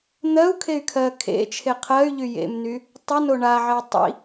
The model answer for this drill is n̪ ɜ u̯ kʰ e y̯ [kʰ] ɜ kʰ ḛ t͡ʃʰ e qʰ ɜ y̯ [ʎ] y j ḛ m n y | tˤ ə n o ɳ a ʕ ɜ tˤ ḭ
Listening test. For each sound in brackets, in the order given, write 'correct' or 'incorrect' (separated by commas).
correct, correct